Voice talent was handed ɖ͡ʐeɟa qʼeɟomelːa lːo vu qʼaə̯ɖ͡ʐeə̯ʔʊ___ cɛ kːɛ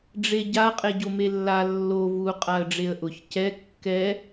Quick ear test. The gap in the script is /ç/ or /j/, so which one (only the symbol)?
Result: ç